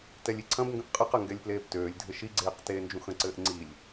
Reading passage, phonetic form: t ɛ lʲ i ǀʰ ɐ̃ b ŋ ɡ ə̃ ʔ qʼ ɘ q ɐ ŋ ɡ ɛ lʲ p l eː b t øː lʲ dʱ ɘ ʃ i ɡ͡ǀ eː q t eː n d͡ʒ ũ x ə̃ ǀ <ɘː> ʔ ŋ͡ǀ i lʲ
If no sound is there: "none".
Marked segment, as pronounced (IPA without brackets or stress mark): ɘː